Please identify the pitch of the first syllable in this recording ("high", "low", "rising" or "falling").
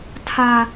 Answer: high